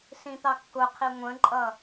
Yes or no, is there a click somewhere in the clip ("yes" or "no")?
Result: yes